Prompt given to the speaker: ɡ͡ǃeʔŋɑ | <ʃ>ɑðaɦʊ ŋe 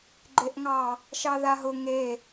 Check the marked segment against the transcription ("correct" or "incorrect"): correct